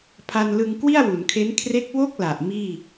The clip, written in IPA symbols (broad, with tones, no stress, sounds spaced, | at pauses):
pʰ a˧ n l ɯ˧ ŋ k w i˥˩ a̯ w u˩˦ n kʰ e˦˥ n kʰ r e˦˥ k̚ w o˥˩ k̚ l a˨˩ ʔ m iː˥˩